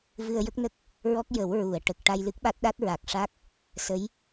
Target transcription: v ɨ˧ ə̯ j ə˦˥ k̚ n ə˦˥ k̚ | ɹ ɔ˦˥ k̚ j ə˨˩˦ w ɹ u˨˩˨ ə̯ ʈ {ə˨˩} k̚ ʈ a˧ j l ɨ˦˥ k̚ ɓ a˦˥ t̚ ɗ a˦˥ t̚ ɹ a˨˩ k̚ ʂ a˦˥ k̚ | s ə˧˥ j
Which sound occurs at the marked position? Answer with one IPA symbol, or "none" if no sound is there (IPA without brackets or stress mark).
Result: ə˨˩